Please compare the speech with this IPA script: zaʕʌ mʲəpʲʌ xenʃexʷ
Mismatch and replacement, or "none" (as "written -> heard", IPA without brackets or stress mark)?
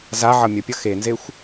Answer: ʃ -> z